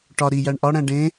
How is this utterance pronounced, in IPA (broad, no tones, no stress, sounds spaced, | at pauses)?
ʈ ɒ ɾ i j æ ɳ ʔ ɒ ɽ æ̃ ɖ ẽ